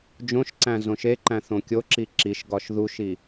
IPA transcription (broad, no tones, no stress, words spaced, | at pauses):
d͡ʒõʃǀæ̃ zõʃeǃæ̃ θõkʲoǁi ǁiʃ ɡɒʃðuʃi